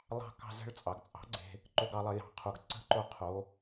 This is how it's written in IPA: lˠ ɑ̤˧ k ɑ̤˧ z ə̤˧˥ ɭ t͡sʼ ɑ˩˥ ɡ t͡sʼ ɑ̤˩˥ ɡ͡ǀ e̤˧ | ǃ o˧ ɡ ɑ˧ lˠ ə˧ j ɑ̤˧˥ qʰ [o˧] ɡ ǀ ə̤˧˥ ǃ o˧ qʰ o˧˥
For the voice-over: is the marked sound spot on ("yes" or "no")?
yes